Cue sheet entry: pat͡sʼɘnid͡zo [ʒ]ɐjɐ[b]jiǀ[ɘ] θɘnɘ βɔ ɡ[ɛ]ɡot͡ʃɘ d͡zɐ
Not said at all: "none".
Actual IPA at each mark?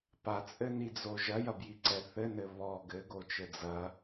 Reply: ʒ, b, ɛ, ɘ

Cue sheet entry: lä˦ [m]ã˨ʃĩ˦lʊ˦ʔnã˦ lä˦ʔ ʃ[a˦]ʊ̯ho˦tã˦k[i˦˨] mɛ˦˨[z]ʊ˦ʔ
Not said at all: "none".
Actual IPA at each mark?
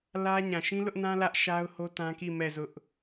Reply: ɲ, a˦, i˦˨, z

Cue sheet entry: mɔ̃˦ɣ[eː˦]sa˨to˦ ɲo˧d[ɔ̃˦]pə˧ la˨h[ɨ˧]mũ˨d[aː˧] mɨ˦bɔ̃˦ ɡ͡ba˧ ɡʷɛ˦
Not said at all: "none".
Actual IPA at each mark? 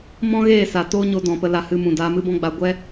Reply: eː˦˨, ɔ̃˨, ɨ˧, aː˧

